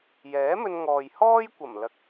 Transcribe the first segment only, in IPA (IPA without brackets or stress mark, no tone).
j